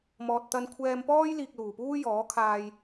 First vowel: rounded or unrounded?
rounded